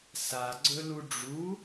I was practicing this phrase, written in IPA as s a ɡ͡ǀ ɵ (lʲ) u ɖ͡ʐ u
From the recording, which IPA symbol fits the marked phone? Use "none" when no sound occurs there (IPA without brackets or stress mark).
l